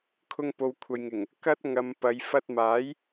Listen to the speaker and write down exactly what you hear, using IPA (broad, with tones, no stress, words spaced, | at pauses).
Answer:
kʰʊ˧ŋpo˨w kʷʰɐ˨jŋɪ˨˩ŋ | kɐ˥t̚ ŋɐ˧mpɐ˨˧j fɐ˧t̚ maː˨˥j